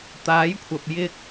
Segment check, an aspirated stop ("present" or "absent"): present